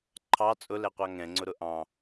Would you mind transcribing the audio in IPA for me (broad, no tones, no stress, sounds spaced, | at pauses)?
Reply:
ǃʰ ɑ t͡sʼ ʊ l ɛ qʷ ɑ ŋ ɛ̃ ŋ͡ǀ ʊ ɾ ʊ ʔ ɑ̃